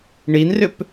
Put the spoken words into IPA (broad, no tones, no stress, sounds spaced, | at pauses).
ɳ i n r ʏ p